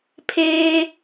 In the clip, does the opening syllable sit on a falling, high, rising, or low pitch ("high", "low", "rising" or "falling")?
low